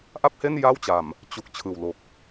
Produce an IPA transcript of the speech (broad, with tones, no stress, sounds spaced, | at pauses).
ʔ a˥˩ p̚ h e˥˩ n j a˥˩ w t͡ɕ a˨˩ m | t͡ɕ u˨˩ k̚ t͡ɕʰ ɯː˨˩ w l o˨˩ k̚